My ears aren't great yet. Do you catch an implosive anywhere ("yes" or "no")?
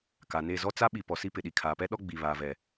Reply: yes